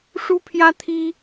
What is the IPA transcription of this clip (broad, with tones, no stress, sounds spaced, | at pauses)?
ʂ u˥ pʰ j ä˥ t̪ʰ i˥